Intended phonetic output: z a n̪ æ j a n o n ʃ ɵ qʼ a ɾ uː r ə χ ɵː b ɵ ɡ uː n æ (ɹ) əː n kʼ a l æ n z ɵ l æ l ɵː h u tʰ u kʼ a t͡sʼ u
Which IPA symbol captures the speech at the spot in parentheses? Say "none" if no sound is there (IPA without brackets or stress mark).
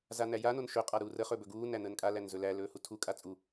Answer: n̪